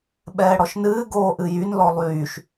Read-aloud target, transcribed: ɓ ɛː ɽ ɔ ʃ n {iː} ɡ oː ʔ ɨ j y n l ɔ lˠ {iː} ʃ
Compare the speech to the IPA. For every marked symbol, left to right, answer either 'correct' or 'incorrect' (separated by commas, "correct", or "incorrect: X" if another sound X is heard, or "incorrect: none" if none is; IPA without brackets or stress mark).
incorrect: ɨː, incorrect: yː